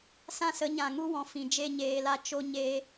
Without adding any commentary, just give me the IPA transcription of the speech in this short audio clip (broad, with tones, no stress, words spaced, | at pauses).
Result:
sã˦sə˨˦ɲã˨ŋu˦ wɔ̃˨fĩ˨ d͡ʒe˦ɲeː˧la˦ t͡ʃo˦ɲeː˦